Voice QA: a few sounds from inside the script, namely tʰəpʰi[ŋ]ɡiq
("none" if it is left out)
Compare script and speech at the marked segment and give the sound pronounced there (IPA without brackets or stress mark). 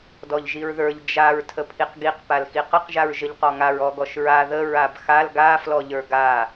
q